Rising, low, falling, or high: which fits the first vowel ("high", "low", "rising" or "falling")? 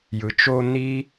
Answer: low